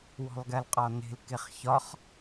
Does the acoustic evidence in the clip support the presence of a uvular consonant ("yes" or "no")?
yes